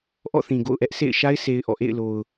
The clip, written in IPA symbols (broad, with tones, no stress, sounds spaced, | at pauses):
ʔ ɔ̰˦˨ θ ĩ˨ ɡ o̰˦˨ ʊ̯ ʔ ɛ˦ ʔ sʰ ḛ˦˨ ɪ̯ ʃ a˦ ɪ̯ sʰ e˦ ɪ̯ ʔ ɔ̰˦˨ ʔ ḛ˦˨ ɪ̯ l o˨ ʊ̯